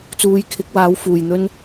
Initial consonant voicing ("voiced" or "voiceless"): voiceless